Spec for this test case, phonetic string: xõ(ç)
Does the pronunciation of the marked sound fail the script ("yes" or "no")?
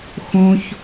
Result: no